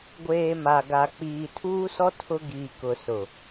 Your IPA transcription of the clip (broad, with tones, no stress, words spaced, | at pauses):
ɡʷeː˨ ma˨ɡa˨ k͡piː˨tʰuː˦sɔ˦ tʰʊ˦ɡiː˨ kʊ˨sʊ˨